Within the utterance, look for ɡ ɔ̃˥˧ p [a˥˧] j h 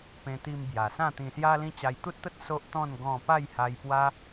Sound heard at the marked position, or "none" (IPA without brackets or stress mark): a˥˧